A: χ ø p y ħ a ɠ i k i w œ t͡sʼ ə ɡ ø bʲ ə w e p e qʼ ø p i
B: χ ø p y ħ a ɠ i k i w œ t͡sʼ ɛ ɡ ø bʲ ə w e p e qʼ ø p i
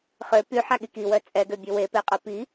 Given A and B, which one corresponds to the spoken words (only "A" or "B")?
B